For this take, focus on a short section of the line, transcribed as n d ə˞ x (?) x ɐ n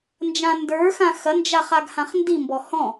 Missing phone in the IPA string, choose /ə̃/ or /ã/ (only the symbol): ã